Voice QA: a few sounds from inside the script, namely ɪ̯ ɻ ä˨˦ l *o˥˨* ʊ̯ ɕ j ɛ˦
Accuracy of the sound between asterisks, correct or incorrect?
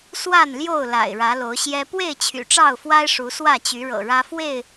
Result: incorrect: o˨˦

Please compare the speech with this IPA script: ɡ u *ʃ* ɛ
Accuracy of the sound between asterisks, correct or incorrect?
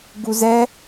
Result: incorrect: z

